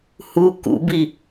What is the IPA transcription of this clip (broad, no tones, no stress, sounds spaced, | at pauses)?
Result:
h u k ṵ b i